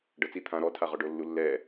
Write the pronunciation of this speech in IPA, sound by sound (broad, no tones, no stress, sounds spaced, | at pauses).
ɖ ɤ t͡s i t̪ʰ ã ɾ ɔ tʰ a ʁ ɔ ɖ o lː u lː ɛ